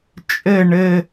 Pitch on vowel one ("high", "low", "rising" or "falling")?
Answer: falling